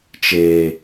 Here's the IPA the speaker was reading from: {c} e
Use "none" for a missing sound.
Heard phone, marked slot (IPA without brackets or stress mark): t͡ʃ